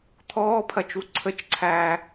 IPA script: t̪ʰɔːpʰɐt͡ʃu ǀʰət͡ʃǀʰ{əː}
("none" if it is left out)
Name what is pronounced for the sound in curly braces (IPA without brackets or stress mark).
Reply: æː